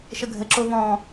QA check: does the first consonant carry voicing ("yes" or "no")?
no